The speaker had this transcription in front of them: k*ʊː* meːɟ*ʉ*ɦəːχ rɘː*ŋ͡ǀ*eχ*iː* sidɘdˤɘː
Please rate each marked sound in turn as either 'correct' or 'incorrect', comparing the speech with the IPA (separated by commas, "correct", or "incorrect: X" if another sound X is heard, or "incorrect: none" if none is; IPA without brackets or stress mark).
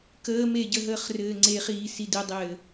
incorrect: əː, incorrect: ə, correct, correct